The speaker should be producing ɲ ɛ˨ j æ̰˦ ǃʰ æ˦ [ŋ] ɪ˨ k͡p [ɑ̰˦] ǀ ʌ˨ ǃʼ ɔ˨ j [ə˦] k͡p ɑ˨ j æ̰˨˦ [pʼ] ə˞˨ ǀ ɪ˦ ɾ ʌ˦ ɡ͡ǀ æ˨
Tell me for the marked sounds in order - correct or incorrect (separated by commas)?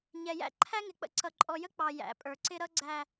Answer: correct, incorrect, correct, correct